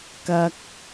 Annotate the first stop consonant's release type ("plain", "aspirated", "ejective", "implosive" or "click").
plain